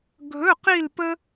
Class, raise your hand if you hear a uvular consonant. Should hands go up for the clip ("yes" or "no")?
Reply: yes